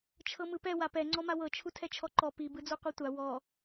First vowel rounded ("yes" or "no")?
no